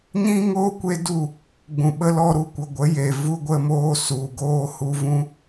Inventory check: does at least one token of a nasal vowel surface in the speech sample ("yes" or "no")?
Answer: yes